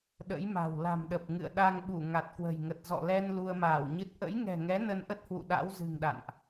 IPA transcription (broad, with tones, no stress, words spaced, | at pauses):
ɗə̰˧˥jma̤˨˩w la̤˨˩mɗə˨˩p̚ ŋɨ̰˧˨ə̯ɗa˧ŋɓu˧˩ ŋa˨˩t̚kwə̤˨˩jŋə˨˩t̚ zɔ̰˧˨lɛ˧n lu˧ə̯maː˧˩wɲɨ˦˥t̚ ʔə̰˧˥jŋɛ̤˨˩ŋɛ˨˦ nə˧nʔə˦˥t̚hwṵ˧˨ ɗa̰˧˥wzɨ̤˨˩ŋɗa̰˧˨nʔ